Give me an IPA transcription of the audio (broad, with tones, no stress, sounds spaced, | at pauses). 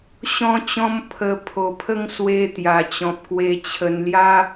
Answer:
ɕ ɔ̃˧ t͡ɕ ɔ̃˧ m pʰ ə˨˩ pʰ o˨˩ pʰ ə˦ ŋ s w e˧ t̪ j a˨˩ t͡ɕ ɔ̃˨ p̚ k w e˧ t͡ɕʰ ə˧ n l j a˦